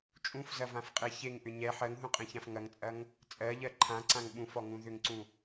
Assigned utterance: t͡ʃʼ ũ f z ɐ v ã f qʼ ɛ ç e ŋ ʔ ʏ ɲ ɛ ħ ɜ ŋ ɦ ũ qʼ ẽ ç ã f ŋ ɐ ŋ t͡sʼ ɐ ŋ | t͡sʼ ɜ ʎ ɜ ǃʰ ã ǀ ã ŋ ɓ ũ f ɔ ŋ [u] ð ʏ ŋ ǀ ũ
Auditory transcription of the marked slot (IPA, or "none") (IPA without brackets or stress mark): ũ